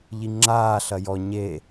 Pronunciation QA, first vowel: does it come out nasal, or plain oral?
oral